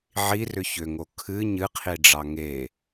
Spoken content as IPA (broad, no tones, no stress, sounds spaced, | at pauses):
ʕ i r ʏ ç ʏ ŋ o kʰ ɨ ɲ ɨ qʰ i ɖ͡ʐ ɑ ŋ e